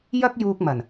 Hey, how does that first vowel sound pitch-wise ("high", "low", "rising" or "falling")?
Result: high